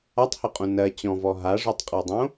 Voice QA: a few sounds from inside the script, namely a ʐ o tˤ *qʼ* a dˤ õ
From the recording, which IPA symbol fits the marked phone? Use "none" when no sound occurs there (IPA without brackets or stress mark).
qʼ